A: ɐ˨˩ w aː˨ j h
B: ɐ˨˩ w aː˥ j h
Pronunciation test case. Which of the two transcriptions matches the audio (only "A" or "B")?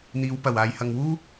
A